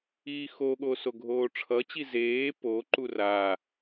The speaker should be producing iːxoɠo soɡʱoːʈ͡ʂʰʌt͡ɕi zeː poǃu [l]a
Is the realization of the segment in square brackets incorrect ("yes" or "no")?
yes